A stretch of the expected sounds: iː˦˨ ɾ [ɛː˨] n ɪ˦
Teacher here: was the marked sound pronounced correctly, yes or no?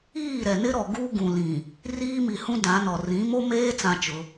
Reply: no